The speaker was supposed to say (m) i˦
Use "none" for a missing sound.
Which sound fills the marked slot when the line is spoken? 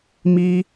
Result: m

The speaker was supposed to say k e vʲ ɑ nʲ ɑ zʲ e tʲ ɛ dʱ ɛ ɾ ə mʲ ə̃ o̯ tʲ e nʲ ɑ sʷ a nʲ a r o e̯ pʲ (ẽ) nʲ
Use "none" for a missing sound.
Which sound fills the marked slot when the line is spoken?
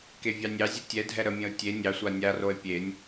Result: e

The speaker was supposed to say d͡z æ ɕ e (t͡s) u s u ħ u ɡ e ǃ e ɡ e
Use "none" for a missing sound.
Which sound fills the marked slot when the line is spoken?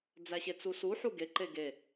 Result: t͡s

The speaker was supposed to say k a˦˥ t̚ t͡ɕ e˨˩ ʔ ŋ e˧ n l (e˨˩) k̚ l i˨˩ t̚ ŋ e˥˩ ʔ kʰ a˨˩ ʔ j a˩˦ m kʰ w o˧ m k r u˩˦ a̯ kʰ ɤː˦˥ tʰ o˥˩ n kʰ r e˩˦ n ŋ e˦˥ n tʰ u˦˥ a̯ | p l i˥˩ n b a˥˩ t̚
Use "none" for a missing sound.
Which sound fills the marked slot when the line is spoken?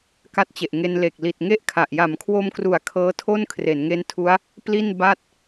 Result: e˨˩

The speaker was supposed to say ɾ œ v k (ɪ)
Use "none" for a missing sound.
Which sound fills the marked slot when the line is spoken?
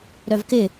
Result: ɪ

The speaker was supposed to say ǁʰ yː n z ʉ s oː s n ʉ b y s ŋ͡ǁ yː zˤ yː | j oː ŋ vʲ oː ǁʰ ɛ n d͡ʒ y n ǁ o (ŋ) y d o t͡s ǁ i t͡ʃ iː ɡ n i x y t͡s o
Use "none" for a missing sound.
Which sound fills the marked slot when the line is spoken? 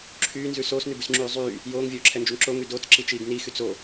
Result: ŋ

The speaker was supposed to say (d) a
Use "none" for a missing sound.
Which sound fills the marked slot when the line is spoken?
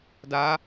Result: d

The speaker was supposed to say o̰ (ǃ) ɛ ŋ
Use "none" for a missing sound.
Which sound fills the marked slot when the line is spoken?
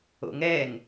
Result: ŋ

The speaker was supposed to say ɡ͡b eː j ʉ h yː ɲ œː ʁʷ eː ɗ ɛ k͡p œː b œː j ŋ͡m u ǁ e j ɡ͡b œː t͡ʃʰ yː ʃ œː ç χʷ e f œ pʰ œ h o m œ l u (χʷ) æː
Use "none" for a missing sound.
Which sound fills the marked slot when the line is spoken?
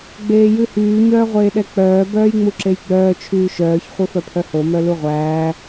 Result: ʁʷ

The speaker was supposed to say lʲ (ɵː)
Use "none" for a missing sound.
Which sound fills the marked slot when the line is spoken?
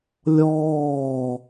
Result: ɔː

